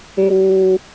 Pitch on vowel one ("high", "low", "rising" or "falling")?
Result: high